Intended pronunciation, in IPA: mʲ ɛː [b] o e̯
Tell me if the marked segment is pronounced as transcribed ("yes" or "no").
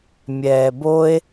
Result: yes